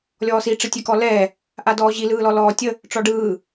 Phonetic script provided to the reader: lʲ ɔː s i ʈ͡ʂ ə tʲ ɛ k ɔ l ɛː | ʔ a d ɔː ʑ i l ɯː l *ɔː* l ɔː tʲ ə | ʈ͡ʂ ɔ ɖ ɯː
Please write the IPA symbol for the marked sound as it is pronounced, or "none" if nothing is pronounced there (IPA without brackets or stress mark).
ɔ